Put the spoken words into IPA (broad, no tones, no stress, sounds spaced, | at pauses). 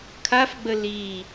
kʰ a f ɡ͡b ə l i